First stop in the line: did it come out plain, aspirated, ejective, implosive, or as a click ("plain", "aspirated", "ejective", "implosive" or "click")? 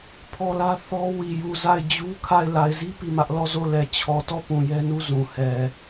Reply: aspirated